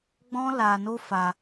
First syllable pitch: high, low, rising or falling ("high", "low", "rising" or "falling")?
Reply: high